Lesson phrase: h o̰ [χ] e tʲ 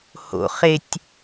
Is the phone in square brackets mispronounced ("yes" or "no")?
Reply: no